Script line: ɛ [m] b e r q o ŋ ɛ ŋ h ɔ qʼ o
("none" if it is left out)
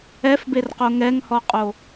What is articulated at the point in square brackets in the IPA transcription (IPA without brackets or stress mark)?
f